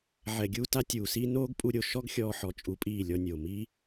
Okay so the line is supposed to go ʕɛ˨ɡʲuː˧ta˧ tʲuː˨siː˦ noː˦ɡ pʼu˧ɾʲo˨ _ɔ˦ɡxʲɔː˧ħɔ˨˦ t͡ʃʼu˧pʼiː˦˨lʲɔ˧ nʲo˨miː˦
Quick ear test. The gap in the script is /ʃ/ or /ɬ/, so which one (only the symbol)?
ʃ